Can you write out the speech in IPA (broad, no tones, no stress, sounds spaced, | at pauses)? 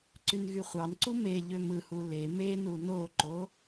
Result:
ǀ y n ɣ y χʷ ɑ n ǀ u m e ʎ ø m ɯ h u l e m e n u n o ǃ o